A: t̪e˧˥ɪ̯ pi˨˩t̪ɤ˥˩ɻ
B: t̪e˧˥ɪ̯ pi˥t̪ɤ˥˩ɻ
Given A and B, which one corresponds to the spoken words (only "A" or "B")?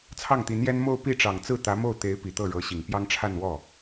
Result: A